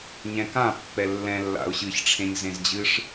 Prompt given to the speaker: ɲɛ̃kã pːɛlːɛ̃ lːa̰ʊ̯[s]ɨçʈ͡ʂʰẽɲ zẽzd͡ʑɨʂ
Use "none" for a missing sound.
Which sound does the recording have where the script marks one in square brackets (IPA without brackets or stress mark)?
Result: ɕ